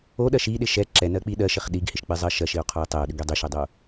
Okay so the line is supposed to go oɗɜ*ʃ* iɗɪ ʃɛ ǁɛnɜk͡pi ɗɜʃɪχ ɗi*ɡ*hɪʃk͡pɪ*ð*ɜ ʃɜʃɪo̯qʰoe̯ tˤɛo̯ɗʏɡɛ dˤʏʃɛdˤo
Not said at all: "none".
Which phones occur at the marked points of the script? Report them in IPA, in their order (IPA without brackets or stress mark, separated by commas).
ʃ, ɡ, zˤ